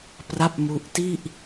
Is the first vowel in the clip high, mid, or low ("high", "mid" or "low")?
low